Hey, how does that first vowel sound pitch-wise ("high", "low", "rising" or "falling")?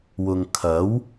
low